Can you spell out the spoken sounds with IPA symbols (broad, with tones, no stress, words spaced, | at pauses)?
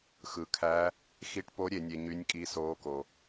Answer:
xɯ˨kʰæ˧˥ | xi˧˥ʈpo˧˥ɾʲe˨nʲe˨ ɲy˧˥nʲkʼi˧˥soː˧˥ko˨